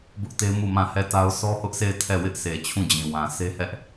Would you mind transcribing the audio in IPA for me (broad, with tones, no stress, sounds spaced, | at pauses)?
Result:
b ʊ˦ ʔ t e˦ m u˦˨ m ã˦˨ h ɛ˦˨ t a˦ ʊ̯ sʰ ɔ˦ h ʊ˦ ʔ sʰ e˦˨ ɪ̯ tʰ ɛ˦˨ w ɪ˦ ʔ sʰ e˨ t͡ɕʰ ũ˦˨ d͡ʑ ĩ˨ w ã˨ sʰ e˦ h ɛ˦ ʔ